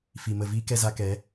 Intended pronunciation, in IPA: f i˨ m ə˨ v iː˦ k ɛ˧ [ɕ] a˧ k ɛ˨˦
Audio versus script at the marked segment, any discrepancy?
yes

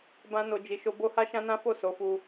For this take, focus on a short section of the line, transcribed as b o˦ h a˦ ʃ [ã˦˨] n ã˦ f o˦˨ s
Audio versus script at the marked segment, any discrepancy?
yes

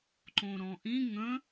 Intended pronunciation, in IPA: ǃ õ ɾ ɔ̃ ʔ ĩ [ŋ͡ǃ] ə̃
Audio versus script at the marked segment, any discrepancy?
yes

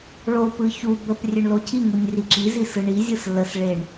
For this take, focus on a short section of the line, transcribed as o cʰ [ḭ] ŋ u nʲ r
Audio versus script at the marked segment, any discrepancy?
yes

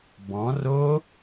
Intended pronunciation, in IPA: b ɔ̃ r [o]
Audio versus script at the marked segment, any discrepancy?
no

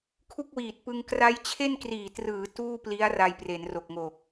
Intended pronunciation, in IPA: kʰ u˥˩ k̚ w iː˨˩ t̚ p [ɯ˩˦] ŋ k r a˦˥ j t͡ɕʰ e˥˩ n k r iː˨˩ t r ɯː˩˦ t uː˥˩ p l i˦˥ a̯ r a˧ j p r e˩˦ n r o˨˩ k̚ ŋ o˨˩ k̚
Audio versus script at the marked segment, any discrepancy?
yes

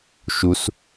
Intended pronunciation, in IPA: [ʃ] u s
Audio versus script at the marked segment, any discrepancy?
no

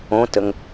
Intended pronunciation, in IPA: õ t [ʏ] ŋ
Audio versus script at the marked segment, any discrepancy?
yes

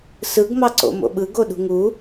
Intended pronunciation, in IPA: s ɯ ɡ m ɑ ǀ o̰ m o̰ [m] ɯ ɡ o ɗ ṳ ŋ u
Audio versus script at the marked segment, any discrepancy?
yes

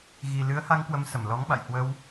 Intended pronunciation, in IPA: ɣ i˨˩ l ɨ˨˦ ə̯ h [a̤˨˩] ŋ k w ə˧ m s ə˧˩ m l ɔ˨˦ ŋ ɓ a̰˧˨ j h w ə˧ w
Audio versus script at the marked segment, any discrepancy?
yes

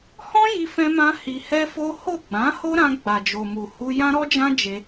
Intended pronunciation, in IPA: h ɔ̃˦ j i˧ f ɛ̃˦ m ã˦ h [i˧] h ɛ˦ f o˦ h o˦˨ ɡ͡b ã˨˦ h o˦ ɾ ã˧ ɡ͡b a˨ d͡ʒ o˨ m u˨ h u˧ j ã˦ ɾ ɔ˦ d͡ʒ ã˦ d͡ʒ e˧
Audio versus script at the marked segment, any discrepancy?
no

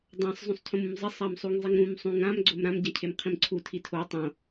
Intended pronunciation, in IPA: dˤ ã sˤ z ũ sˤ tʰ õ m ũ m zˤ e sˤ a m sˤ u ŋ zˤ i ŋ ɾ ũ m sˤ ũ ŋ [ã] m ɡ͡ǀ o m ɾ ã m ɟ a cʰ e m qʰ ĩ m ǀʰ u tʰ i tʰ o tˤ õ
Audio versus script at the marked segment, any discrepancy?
no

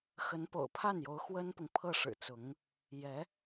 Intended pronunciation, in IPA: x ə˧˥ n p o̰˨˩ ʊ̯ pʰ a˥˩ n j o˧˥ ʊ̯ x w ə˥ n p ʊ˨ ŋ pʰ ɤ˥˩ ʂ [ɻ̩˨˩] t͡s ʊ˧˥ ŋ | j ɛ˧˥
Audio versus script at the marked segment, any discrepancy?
no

